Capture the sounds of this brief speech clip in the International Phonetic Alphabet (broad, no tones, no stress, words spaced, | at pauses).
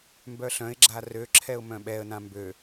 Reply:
mbœɬœ̃ɪ̯ɡ͡ǁa røǁʰɛʊ̯ mœ̃ɓɛə̯nã mbø